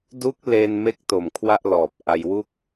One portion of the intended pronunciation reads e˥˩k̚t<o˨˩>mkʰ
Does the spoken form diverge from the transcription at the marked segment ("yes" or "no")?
no